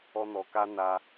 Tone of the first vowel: high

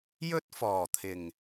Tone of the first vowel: high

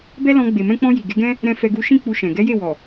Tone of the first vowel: high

